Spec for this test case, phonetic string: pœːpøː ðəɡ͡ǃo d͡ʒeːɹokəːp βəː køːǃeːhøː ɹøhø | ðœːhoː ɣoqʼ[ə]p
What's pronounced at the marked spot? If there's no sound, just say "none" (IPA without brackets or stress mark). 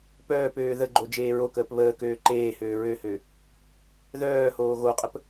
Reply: ə